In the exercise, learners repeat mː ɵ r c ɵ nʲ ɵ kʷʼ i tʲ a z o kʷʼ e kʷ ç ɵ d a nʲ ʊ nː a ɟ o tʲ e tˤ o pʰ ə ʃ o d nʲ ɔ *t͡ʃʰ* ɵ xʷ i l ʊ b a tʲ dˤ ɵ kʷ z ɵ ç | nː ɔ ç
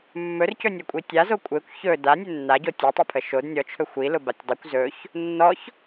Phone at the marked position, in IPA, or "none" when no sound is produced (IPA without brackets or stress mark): t͡ʃʰ